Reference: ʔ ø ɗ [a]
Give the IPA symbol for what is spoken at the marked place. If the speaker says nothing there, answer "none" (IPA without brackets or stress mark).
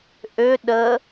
ə